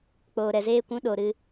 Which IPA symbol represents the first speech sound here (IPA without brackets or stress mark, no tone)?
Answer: k͡p